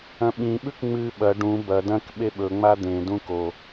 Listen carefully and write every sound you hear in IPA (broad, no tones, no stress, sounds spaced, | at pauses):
ɐ̃ ɓ ĩ ɓ ʉ k ŋ͡m ɨ ɓ ɐ ɖ ũ b ɐ d ɐ̃ k ɓ e ɓ ɵ ŋ͡m a d̪ ẽ d ũ k o